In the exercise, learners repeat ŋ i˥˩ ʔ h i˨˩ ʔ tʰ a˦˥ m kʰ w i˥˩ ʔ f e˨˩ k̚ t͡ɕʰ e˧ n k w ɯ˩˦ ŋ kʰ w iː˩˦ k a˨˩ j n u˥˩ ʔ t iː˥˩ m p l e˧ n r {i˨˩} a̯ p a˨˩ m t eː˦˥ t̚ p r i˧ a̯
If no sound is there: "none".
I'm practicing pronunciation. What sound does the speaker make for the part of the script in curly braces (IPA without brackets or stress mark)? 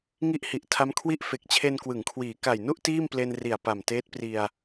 i˨˩